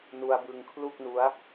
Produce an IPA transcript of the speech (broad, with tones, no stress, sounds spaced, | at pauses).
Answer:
n u˧ a̯ b ɯ˧ ŋ kʰ l u˥˩ k̚ n u˦˥ a̯